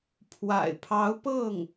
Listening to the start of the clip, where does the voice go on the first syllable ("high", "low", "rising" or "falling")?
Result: low